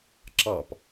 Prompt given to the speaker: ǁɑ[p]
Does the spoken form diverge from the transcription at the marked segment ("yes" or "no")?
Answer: no